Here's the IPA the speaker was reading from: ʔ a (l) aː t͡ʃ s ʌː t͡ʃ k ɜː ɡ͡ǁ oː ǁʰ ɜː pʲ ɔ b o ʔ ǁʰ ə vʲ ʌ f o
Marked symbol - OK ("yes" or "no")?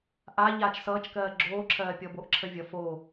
no